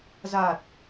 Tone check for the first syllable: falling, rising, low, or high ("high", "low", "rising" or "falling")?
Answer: low